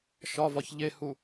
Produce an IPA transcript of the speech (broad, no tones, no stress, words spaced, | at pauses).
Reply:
ʃɒvɒç ʎehu